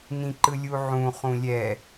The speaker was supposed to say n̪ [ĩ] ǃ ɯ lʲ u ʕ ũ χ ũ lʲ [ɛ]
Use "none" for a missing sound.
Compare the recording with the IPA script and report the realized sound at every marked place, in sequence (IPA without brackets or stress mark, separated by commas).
ĩ, ɛ